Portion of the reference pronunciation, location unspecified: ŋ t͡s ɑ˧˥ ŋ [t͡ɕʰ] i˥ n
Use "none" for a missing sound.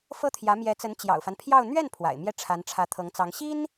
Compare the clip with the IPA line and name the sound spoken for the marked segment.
ɕ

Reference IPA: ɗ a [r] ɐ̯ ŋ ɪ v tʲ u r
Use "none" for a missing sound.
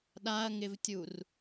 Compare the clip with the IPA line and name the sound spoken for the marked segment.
none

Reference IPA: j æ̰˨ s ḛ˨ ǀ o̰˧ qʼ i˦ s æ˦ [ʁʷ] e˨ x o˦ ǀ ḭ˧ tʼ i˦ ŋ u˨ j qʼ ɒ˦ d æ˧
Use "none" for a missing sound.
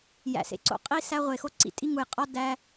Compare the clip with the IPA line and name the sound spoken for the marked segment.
ʁʷ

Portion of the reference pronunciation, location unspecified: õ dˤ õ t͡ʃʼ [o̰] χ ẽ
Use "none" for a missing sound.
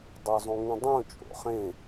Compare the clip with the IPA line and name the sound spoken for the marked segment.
o̰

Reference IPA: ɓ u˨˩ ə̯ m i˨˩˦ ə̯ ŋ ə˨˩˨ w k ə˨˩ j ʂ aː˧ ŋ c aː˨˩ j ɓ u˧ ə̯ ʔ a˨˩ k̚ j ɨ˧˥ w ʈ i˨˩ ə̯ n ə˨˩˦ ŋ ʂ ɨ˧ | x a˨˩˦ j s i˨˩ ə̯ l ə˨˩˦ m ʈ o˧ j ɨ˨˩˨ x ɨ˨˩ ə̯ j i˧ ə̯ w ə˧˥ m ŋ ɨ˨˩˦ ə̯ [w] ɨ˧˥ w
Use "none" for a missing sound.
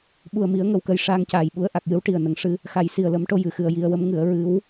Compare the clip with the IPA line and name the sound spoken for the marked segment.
ɹ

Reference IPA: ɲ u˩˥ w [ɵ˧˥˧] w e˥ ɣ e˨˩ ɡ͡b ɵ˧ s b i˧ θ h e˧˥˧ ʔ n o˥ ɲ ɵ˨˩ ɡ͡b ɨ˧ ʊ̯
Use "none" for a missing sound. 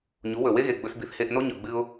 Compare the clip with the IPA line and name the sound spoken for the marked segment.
ɵ˨˩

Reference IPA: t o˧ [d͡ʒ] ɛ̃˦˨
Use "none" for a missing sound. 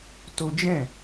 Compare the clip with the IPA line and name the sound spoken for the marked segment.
d͡ʒ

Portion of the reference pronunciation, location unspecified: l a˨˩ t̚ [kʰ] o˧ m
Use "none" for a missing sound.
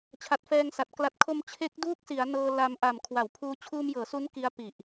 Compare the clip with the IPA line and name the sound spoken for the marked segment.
kʰ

